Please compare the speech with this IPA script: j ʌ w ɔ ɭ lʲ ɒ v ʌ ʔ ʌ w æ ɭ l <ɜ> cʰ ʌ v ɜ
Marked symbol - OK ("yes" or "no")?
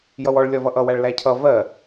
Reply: no